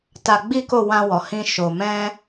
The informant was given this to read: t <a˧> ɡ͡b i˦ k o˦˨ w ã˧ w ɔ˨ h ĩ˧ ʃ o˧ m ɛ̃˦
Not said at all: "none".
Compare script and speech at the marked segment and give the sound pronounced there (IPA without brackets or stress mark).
a˧